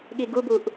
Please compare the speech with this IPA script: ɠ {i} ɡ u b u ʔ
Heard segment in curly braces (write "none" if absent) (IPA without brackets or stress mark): i